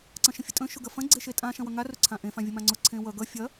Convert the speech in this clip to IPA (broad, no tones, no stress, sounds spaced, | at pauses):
ǀ ɐ̃ ʃ ə̃ fʲ ʊ tʼ ə̃ ʃ ʊ ɡ ɐ f ɐ̃ ɡ͡ǀ e ʃ e tʼ ã ʃ ɐ̃ w ʌ ŋ a r ʊ ǀʰ ã ʔ ẽ f ã vʲ ə m ã ŋ͡ǀ ʊ ǀʰ ẽ w ʌ ɡ ʌ fʲ ɐ